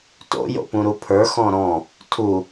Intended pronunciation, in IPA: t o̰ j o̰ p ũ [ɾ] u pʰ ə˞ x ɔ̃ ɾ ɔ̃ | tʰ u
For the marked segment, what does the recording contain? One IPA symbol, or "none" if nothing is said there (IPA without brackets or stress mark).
ɾ